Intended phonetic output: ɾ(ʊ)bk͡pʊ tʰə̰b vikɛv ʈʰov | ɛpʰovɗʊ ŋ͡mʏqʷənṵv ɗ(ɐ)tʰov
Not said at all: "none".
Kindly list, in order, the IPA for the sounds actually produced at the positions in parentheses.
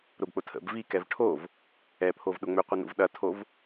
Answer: ʊ, ɐ

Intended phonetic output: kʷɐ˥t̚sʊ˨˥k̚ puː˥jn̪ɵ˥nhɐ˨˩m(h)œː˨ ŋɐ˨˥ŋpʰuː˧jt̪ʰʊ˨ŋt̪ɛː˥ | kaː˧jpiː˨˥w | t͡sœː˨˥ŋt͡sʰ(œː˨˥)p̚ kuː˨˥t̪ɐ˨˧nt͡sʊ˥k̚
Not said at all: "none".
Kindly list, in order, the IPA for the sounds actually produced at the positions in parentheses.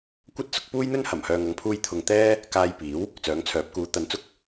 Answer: h, œː˨˥

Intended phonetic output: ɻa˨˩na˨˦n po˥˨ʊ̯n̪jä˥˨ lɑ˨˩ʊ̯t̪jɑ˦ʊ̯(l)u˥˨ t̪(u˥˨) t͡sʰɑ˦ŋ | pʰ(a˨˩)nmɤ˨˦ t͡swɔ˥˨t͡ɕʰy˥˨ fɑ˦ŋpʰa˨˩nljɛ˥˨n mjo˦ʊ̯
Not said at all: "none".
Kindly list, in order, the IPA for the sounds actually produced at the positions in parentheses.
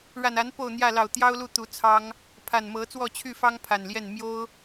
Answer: l, u˨˦, a˨˩

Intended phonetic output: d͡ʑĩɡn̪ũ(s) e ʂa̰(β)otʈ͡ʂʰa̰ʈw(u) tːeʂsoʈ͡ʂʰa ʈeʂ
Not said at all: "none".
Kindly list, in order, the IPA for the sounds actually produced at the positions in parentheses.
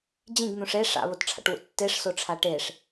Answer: ʂ, β, ṵ

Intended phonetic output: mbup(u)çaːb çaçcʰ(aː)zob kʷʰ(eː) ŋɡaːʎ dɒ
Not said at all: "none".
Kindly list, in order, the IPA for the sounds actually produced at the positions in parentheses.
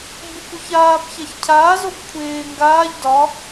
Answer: u, aː, eː

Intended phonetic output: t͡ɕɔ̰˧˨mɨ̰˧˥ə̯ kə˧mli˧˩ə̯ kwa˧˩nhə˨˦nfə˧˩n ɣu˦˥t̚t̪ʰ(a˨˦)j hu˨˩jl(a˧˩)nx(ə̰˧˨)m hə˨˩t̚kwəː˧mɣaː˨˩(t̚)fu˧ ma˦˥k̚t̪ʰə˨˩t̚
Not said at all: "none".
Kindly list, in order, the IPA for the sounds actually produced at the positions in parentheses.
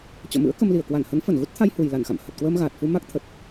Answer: a˧, a˧˩, a̰˧˨, t̚

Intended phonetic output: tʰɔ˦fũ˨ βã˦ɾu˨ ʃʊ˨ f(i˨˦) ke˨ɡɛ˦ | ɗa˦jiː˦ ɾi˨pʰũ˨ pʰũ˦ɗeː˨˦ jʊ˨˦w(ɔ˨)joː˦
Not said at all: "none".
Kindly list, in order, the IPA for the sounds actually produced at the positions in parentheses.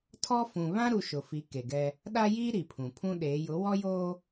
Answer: i˨˦, ɔ˦

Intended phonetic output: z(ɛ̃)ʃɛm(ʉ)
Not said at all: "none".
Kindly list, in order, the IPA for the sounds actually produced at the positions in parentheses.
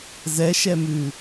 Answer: ɛ, ʉ

